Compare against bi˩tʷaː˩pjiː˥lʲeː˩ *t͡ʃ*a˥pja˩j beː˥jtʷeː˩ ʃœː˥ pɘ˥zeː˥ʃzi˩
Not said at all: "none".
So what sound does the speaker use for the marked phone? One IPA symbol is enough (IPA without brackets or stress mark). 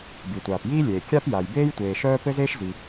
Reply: kʲ